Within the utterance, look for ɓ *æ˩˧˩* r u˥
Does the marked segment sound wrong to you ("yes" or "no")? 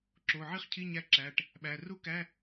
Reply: no